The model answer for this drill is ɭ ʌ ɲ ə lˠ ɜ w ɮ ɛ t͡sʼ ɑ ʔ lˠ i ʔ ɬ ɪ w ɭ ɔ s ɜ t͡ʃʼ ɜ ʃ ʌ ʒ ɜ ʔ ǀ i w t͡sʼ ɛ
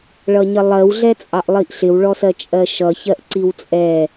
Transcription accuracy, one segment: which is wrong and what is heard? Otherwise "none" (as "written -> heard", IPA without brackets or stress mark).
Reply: ʒ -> ç